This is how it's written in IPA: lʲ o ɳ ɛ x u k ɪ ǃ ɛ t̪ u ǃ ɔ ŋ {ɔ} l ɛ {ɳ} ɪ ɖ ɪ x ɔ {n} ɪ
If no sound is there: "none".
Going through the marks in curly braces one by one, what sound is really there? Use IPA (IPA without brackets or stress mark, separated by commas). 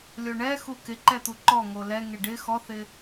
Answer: o, ŋ, θ